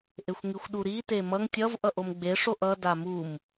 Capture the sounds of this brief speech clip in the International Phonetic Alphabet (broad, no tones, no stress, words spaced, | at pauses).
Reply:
ʔexʷŋixʷɗuɾi temʌŋ tʲʌv ʔʌʔomɡ͡be ʂoʔʌ damum